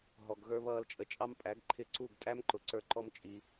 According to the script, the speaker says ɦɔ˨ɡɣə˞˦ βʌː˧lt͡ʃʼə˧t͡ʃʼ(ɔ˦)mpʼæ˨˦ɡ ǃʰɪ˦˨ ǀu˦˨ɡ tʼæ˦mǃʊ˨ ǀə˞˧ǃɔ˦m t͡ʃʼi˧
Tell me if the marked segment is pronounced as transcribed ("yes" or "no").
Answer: no